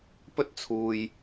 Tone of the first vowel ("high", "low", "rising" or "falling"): high